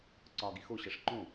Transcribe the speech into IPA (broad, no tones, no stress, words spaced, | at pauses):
ǀɒɡi xo ɕʌʂǃõ